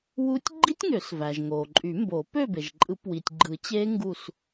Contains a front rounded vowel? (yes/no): yes